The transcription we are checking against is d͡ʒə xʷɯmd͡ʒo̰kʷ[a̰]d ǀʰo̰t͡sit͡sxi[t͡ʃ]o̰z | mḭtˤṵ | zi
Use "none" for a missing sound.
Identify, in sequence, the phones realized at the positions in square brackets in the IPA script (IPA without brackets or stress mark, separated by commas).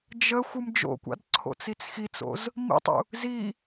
a̰, t͡s